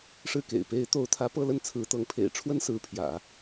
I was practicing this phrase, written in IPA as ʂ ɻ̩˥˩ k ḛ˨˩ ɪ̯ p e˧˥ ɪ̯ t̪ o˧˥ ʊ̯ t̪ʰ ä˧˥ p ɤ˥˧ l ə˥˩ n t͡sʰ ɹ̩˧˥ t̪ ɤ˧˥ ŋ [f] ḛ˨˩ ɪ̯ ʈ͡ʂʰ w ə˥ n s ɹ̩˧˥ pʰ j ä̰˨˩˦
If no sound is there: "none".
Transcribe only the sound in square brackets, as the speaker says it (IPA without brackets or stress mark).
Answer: pʰ